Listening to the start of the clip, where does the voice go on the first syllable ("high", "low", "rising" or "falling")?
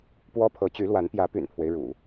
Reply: high